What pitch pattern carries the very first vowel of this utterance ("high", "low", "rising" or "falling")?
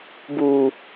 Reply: low